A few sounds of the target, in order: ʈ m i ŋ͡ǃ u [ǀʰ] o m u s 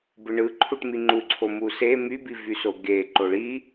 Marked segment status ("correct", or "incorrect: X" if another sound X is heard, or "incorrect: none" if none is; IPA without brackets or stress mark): correct